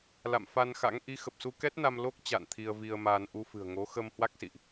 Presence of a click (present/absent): absent